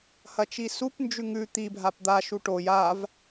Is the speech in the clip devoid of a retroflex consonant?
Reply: no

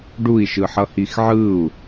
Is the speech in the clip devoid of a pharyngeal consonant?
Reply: no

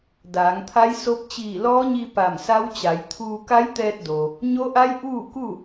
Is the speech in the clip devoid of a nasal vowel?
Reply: yes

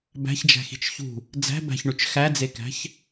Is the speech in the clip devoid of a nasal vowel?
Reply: yes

